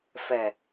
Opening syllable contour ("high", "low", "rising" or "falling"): low